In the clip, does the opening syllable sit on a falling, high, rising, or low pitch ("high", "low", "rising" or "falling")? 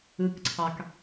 rising